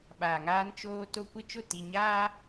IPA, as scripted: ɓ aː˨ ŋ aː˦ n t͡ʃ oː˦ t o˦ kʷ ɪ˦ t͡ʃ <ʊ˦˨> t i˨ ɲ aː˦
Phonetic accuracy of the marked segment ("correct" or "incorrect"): correct